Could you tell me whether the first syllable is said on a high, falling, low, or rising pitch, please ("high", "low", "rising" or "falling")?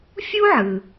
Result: high